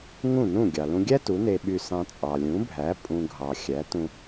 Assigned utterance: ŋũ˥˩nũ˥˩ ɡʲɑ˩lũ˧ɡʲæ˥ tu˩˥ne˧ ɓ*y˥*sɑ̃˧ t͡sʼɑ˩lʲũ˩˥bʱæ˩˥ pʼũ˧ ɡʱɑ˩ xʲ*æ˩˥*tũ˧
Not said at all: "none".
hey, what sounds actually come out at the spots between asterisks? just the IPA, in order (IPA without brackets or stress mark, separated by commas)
y˧, æ˩˥